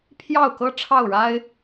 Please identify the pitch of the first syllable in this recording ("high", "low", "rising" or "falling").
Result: falling